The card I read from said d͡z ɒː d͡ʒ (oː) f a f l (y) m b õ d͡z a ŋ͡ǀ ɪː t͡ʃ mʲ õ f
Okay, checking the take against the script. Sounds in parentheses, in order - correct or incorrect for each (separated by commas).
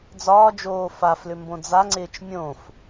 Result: correct, incorrect